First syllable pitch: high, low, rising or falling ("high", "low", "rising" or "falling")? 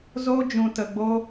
high